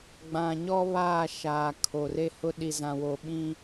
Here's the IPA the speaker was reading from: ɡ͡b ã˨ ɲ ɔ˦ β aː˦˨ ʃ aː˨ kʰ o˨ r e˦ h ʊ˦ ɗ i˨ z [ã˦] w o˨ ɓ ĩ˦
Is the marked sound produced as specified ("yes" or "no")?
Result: no